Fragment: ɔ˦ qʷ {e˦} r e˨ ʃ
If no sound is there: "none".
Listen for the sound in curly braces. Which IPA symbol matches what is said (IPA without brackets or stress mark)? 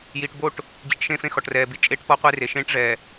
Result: e˦